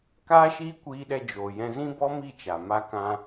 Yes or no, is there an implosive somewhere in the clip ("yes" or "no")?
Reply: yes